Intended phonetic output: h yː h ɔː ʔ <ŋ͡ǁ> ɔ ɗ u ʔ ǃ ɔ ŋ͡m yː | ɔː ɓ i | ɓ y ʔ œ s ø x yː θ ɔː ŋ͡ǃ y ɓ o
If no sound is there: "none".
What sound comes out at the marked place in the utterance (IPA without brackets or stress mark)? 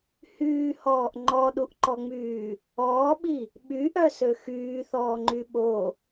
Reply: ŋ͡ǃ